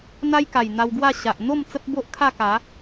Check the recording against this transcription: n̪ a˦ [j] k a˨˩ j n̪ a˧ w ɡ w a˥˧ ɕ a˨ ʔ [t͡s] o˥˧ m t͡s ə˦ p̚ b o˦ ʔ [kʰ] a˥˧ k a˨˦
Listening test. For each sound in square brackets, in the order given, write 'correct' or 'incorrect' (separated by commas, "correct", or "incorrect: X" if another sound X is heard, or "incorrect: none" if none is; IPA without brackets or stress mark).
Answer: correct, incorrect: n̪, correct